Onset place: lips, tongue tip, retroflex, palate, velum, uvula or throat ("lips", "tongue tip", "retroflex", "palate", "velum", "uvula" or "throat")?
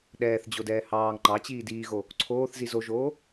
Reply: tongue tip